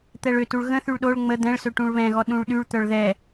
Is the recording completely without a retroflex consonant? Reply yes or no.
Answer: no